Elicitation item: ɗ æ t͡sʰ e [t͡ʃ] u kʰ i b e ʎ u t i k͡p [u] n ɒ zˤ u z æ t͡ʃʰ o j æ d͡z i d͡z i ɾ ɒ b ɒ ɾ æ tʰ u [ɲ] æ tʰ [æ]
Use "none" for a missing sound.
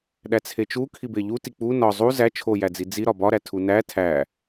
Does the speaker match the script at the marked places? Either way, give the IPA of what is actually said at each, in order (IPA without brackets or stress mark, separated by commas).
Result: t͡ʃ, u, n, æ